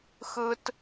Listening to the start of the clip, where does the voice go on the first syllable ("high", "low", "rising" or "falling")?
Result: high